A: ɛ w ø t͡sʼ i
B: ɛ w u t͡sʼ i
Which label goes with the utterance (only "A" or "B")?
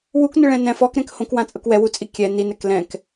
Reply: B